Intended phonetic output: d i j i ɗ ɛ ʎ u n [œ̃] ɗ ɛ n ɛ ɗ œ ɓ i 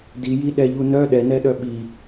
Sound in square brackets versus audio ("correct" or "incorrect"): incorrect